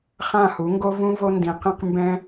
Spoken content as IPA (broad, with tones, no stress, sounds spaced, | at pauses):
χ ã˦˨ h u˨˦ ŋ ɡ o˦ v ũ˦ v o˦ n d ĩ˧ q ĩ˦ q m b ɛ̃˦